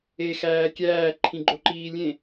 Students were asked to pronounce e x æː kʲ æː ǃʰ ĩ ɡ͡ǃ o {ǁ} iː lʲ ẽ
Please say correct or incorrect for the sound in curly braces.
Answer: incorrect